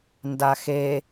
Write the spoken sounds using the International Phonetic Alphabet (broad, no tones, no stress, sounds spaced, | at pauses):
n d a x e